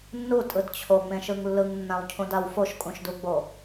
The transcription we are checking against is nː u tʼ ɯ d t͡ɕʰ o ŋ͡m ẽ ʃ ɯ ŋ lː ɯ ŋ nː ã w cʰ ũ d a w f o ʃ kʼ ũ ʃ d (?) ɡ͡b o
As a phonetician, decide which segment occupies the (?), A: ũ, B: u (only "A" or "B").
B